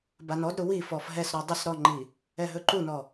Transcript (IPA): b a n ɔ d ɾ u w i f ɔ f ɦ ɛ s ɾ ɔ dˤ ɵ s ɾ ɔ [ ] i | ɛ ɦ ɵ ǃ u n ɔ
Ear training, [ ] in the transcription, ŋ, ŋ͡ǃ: ŋ͡ǃ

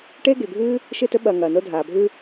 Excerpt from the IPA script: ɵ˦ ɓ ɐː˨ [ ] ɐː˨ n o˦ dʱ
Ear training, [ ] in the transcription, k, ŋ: ŋ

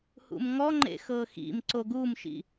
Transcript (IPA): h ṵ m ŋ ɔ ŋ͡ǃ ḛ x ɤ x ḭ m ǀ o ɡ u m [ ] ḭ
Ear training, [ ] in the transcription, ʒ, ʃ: ʃ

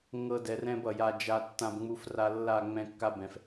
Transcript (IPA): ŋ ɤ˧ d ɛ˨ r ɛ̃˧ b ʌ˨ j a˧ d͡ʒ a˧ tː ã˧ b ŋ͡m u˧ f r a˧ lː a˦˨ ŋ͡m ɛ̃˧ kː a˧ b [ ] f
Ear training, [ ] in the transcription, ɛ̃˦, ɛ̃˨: ɛ̃˨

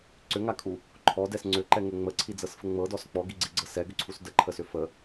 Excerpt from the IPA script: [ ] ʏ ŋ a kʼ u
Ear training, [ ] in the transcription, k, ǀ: ǀ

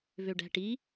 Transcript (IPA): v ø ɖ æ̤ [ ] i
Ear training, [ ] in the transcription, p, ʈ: ʈ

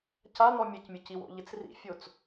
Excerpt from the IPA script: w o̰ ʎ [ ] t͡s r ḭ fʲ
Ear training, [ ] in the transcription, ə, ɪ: ɪ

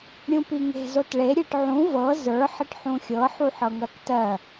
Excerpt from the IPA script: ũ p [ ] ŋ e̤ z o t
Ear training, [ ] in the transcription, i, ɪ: i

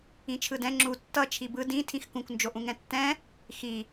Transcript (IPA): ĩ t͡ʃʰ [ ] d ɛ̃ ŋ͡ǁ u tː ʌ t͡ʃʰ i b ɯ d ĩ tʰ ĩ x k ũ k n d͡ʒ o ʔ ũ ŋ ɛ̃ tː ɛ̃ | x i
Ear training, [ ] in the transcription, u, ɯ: ɯ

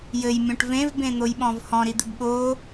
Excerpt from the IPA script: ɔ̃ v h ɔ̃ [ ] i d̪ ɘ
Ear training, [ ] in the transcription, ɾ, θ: ɾ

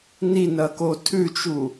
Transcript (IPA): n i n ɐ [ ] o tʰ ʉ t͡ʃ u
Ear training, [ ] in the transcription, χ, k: k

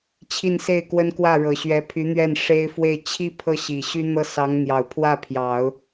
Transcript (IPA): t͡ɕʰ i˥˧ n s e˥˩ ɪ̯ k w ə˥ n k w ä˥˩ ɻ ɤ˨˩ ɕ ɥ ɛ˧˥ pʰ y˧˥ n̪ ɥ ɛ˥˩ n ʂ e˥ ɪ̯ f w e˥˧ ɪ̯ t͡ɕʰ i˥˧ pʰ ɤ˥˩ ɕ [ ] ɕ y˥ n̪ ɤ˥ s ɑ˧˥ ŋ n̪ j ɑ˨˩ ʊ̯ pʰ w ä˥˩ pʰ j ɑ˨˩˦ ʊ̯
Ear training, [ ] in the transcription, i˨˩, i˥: i˨˩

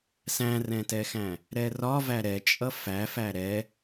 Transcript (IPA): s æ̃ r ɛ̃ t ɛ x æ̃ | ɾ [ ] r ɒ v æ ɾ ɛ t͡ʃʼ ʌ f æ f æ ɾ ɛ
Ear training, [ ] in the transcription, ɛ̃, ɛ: ɛ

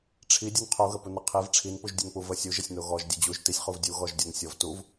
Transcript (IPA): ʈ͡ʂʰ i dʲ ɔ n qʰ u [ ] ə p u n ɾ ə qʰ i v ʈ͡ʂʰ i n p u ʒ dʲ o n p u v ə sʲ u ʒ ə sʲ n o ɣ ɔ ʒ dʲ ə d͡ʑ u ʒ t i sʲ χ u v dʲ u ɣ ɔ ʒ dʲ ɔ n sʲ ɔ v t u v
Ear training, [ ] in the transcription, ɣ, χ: ɣ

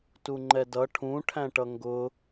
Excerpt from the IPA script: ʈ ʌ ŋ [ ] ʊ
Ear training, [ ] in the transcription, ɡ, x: ɡ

